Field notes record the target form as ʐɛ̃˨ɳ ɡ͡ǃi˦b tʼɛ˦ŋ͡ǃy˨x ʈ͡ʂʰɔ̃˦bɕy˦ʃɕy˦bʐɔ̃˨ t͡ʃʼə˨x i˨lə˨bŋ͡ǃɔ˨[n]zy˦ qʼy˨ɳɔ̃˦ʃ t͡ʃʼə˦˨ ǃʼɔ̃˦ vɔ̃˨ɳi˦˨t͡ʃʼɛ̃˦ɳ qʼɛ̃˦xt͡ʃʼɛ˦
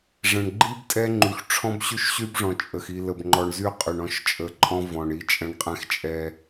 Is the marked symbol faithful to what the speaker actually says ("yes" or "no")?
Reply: no